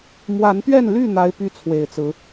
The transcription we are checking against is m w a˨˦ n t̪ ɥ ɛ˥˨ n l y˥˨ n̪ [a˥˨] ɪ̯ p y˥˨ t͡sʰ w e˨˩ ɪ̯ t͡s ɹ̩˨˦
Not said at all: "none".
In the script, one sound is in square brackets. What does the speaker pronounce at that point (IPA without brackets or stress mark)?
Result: a˨˦